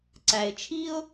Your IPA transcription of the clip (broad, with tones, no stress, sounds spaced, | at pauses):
ǀ æ˩ ɪ̯ t͡ʃʰ i˥ ʊ̯